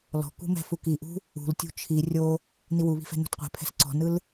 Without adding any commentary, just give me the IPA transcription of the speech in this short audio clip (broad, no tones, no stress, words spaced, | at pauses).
lɔ̤kṳmɛ̤ fukiʔṳ | ṳltʲṳ t͡ʃʰi rʲo | niwuβi̤fɛ̤ nṳtqʷɛ̤pʰɛ̤s ǀɔ̤nɯl